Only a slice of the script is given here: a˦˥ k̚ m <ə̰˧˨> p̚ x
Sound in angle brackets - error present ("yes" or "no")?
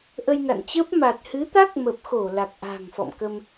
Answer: yes